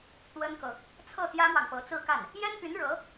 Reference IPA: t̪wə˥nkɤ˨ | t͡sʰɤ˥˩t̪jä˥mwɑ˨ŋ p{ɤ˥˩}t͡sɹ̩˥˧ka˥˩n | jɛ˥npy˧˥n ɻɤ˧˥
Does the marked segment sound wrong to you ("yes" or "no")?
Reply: yes